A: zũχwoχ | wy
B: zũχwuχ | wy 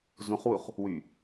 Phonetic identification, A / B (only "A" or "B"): B